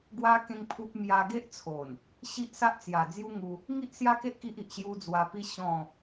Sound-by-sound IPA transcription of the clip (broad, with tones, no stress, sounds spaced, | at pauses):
ɡ w a˦ k ẽ˦ ŋ pʰ u˦ p̚ m j a˧ ɡ e˦ ʔ t͡sʰ o˨˩ n | ɕ i˦ ʔ s a˦ ʔ t͡s j a˨˩ d͡z j u˦ ŋ u˧ | ŋ i˦ ʔ s j a˦ k e˦ ʔ k i˦ ʔ i˨ ʔ ɕ j u˦ d͡z w a˧ p i˦ ɕ ɔ̃˥˧